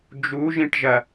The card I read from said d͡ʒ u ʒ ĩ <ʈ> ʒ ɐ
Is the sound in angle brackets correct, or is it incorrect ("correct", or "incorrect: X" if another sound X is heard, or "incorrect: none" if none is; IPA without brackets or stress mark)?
correct